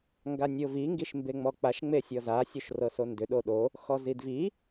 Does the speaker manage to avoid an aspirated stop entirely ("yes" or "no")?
yes